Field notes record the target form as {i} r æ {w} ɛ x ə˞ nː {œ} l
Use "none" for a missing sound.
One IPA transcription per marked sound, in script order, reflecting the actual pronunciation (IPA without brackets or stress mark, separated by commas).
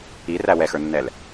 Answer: i, w, ɛ